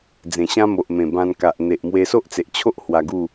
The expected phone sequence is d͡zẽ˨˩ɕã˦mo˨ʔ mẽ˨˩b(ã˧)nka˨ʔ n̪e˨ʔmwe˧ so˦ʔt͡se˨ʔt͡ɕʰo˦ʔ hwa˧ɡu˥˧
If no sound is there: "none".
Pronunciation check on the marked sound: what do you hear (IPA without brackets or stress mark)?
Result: ã˧